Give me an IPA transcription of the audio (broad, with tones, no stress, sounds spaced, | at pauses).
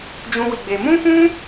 d͡ʒ ũ˦ w i˧ ɡ͡b e˧ m ũ˦ f ũ˦